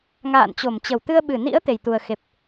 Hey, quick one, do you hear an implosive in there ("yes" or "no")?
yes